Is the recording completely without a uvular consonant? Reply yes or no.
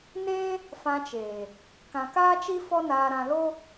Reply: yes